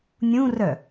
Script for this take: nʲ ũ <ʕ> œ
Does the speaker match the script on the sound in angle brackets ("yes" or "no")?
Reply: no